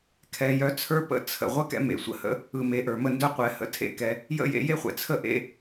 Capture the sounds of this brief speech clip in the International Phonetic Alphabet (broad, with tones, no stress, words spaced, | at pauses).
kʰɛ˨jœ˧ t͡sʰə˞˦pə̰˦˨ t͡sʰə̰˨ ʁʷə˦kɛ̰˧ mḛ˨sʷə̰˦hə̰˦ | ɯ˨ me˨ʔə˞˨mə˧ ndœ˦ qʷɛ˨hə̰˧ tʰḛ˦kɛ˧ | jə̰˦˨jḛ˧je˦ χʷɛ̰˨t͡sʰə˦ʔḛ˦